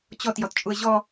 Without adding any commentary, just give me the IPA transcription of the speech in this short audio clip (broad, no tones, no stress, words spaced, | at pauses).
t͡ɕɔt jɔtt͡ʃʼuə̯ʑɔ